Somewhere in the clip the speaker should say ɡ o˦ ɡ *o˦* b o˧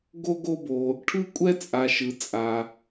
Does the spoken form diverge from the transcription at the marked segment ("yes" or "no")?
no